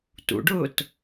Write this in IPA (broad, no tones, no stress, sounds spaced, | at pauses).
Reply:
t ṵ ɖ ʊː t